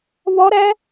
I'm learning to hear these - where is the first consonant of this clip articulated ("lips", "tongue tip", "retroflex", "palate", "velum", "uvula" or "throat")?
lips